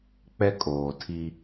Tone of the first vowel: high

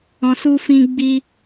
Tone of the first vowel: low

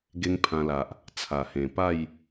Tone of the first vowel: high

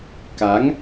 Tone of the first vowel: rising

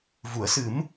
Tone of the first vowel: low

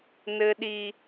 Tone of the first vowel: high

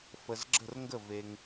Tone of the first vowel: low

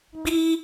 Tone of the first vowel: high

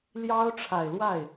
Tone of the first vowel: high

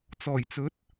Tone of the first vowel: low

